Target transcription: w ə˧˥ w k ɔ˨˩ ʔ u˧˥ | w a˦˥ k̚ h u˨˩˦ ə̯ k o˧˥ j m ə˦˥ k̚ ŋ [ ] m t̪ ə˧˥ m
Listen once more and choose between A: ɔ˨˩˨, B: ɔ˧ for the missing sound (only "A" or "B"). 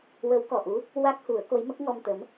B